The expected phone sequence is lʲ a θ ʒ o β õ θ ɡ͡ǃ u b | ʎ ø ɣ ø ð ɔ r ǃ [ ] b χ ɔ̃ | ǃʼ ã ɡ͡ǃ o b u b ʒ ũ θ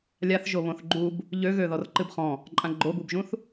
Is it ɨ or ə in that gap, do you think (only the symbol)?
ɨ